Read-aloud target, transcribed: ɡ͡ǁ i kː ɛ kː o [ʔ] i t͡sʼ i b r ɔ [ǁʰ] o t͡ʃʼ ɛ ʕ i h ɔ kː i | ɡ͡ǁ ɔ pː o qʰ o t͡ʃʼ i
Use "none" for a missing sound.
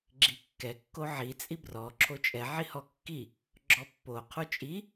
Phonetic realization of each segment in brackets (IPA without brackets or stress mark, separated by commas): ʕ, ǁʰ